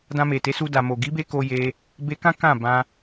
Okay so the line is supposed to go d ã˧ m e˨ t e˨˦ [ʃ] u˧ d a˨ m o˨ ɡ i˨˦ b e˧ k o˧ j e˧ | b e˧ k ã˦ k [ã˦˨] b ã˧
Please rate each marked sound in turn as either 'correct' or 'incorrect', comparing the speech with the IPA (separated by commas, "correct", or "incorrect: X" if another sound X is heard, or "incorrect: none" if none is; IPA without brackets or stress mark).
incorrect: s, correct